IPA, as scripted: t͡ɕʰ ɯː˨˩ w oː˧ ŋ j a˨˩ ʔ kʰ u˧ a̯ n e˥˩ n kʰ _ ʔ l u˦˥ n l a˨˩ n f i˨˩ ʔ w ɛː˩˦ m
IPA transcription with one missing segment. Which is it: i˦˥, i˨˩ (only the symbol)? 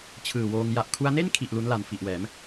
i˨˩